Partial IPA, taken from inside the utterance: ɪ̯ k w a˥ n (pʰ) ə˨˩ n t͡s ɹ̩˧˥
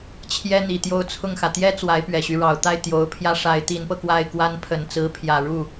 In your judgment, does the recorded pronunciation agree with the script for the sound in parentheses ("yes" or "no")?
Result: yes